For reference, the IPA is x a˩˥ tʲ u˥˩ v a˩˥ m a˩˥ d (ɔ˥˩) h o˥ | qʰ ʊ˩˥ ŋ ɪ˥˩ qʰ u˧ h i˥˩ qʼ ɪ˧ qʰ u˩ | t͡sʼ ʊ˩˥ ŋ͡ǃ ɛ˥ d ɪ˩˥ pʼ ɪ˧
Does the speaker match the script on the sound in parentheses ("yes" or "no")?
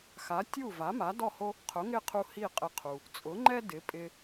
yes